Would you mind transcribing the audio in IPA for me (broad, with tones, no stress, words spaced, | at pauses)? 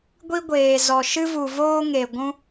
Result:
ɡʷi˦ɡʷeː˨zɔ˨ ʃɨ˦vu˨voː˦ŋe˨ ɡʷũ˦